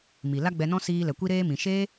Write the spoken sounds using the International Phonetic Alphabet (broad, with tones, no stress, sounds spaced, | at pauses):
m i˨ l a˦ ɡ͡b ɛ˧ n ɔ̃˦ s iː˧ l ɛ˨ kʷ i˦ ɾ eː˦ m ĩ˨ ʃ e˦